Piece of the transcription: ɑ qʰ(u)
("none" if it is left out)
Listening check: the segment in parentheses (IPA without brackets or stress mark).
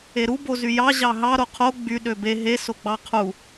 u